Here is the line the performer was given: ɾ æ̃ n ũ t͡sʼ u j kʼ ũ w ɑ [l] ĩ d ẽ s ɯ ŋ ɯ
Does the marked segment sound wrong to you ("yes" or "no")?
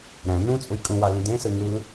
no